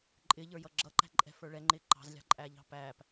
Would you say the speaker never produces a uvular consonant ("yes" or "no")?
yes